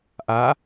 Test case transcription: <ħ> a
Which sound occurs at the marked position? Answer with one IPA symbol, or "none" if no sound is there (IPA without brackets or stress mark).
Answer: ʔ